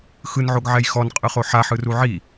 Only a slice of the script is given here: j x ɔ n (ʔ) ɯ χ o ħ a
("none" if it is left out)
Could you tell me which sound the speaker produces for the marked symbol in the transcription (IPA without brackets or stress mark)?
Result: qʼ